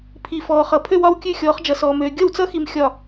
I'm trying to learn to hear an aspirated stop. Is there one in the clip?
yes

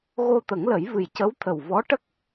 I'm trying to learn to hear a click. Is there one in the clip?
no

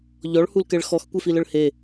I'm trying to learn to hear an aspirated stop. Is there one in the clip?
no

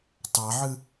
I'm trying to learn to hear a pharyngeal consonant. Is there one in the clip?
yes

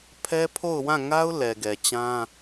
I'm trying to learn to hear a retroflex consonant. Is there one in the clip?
no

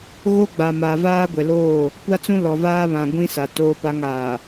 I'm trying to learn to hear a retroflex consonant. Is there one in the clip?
no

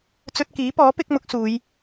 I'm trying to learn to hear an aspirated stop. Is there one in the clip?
no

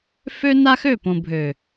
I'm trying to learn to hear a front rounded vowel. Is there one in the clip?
yes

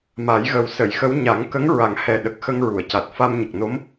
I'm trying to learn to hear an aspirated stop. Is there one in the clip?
no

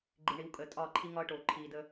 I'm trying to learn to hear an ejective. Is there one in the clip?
yes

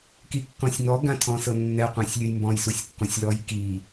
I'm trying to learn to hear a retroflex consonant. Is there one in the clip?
no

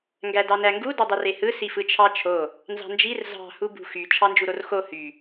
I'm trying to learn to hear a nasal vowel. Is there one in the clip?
no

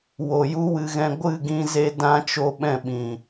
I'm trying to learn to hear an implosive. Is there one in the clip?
yes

